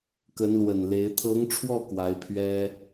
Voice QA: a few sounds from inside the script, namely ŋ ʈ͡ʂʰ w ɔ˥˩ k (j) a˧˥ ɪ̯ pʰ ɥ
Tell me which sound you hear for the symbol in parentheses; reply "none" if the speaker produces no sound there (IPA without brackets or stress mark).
w